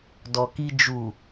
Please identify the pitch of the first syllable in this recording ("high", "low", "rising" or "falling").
low